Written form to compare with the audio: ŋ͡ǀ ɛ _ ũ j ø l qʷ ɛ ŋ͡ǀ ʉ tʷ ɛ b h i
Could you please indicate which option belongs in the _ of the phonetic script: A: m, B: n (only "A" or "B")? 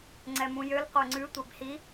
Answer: A